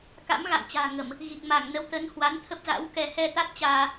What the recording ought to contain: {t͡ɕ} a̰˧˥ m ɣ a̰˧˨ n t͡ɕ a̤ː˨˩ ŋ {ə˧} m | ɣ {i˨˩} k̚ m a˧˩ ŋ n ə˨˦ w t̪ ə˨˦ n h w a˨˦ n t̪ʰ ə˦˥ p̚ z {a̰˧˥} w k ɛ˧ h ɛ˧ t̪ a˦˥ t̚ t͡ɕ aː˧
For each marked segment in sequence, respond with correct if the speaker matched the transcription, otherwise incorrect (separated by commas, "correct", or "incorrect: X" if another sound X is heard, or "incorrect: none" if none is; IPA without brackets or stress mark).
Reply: incorrect: k, incorrect: ə˧˩˨, correct, correct